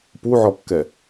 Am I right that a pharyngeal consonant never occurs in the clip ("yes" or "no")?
no